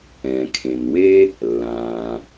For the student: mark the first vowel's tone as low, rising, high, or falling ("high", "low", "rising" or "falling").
low